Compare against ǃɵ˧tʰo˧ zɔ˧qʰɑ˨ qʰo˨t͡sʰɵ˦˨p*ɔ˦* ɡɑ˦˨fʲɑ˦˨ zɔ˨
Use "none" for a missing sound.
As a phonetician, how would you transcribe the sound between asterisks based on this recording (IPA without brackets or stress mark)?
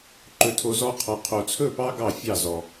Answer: ɑ˦